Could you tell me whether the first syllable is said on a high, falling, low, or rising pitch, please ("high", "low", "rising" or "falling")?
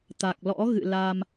low